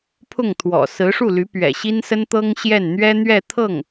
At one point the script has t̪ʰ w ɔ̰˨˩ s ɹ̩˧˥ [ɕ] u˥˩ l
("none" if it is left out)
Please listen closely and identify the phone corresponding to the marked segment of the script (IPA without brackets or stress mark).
ʂ